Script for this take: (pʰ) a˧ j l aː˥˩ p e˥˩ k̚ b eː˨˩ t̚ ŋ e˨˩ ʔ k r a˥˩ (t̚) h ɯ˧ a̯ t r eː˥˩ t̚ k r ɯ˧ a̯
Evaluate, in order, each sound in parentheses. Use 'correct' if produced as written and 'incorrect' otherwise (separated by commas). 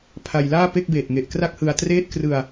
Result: correct, incorrect